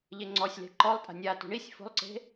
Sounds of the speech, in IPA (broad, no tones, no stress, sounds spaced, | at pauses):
ʎ e ŋ͡ǀ ɔ sʲ l e̤ ǃ ɔ lˠ tʼ a̤ nʲ a t ṳ ɳ i sʲ f o̤ lˠ ǀ e̤